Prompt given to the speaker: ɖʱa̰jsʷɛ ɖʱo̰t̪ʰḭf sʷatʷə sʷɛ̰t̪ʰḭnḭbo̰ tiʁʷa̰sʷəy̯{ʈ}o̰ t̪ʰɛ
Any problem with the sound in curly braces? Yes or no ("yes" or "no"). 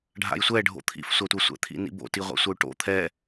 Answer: no